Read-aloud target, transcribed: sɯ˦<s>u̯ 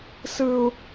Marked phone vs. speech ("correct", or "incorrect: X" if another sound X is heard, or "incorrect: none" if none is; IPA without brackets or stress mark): incorrect: none